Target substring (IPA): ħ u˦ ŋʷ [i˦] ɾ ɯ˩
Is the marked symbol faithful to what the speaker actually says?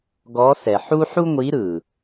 no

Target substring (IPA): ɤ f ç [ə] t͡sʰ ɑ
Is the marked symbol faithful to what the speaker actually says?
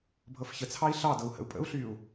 yes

